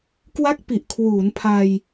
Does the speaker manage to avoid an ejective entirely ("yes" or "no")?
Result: yes